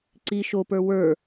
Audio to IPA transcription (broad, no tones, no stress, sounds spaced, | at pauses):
ǀ i ʃ o p ə˞ w ə˞